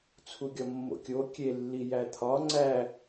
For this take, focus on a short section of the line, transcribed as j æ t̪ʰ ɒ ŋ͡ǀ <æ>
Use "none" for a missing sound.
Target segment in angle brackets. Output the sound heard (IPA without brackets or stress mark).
æ